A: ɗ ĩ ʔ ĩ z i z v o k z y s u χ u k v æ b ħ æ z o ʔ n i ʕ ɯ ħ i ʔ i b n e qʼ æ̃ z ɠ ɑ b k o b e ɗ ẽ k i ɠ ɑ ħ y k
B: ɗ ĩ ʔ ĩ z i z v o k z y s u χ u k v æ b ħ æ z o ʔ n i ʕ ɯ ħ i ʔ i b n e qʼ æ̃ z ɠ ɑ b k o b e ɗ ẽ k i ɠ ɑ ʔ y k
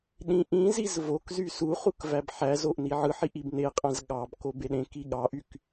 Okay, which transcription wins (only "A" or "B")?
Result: B